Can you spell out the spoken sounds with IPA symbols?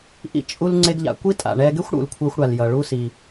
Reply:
ʔḭ˧ t͡ʃʼu˧l ŋ͡ǀe˧ɡʎa̰˩kʷi˥ tʼa̰˩ɳɛ˧ɡe˥xʷ ɽṵ˩lkʷʰɜ˧xʷɽa˩l jʌ˩ɭu˧ si˩

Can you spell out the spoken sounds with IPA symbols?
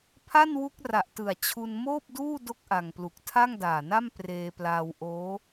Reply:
pʰa˥˩nwu˦˥k̚ra˨˩ʔtɯ˨˩a̯ t͡ɕʰu˧nmoː˥˩p̚duː˥˩ do˥˩k̚ʔa˨˩ŋplu˨˩k̚ tʰa˥˩ŋdaː˨˩na˥˩m preː˧plaː˧wʔoː˦˥

